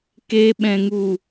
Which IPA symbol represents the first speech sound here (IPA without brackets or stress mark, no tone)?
k